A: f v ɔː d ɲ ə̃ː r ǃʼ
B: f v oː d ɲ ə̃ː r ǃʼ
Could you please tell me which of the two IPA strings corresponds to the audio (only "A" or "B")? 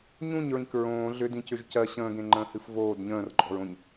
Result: B